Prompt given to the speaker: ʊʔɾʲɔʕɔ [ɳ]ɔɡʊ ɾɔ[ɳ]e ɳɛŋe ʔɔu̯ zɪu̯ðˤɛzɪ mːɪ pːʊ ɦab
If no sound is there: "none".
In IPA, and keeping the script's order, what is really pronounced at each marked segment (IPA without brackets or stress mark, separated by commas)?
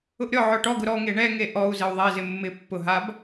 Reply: ʈ, ŋ